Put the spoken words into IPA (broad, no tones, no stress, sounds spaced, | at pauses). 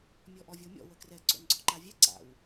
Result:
mʲ ɔ ʔ ɔ vʲ o mʲ ɔ̰ w ə k r ɛ ǀ o̰ n ɡ͡ǀ ɔ ǃ a vʲ ɛ ǀ a̰ w